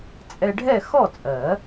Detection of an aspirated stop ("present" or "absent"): absent